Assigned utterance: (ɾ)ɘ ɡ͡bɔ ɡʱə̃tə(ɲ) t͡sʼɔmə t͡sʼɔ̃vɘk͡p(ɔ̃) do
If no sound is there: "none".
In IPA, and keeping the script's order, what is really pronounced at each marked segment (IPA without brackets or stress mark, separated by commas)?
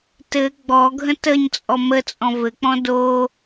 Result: t, ɲ, ɔ̃